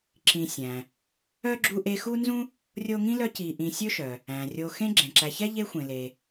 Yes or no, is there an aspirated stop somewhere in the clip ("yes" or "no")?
no